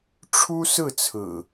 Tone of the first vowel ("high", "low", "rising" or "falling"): high